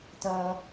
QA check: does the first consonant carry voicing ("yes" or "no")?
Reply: no